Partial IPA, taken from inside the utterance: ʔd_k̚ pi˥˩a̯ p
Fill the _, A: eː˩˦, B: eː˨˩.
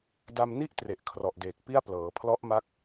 B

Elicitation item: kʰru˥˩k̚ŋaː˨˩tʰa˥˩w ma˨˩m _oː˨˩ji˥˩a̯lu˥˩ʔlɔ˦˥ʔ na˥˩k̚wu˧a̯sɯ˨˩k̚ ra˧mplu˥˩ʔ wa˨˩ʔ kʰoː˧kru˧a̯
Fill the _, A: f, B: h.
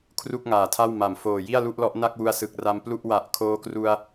A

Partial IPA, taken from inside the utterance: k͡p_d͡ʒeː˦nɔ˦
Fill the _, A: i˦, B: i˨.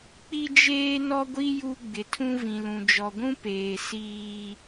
A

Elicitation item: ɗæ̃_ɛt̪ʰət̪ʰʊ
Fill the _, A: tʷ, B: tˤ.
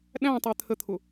B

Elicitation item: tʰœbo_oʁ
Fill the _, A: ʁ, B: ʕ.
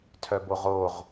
A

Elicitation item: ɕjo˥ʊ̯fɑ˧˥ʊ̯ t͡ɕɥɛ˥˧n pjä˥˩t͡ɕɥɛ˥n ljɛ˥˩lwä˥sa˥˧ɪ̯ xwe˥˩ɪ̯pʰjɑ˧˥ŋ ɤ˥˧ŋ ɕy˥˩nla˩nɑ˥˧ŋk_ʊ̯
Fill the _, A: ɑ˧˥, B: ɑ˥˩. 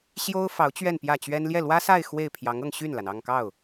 B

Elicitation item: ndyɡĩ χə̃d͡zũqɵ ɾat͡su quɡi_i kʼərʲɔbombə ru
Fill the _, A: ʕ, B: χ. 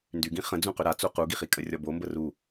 B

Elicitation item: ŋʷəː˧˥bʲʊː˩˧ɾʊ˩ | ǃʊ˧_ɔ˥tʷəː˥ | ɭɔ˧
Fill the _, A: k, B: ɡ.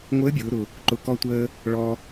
A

